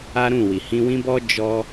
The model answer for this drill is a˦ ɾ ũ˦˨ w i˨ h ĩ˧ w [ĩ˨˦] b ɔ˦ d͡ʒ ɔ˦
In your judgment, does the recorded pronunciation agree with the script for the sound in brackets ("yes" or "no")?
no